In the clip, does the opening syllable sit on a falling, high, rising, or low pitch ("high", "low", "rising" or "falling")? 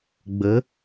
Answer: rising